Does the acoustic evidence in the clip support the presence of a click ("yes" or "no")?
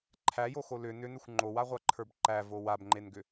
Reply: yes